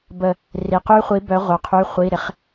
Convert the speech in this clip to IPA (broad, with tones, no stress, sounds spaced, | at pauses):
b ə˧˩ | r i˩ q y˦˥ χʷ i˩˥ b œ˩˥ ʁʷ œ˩ qʰ y˩˧˩ χʷ i˩˧˩ ɾ ɪ˩˥ χ